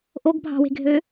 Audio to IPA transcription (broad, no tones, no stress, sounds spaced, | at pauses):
ʔ o ɡ bʱ ɑ̤ w e̤ ɡʱ ø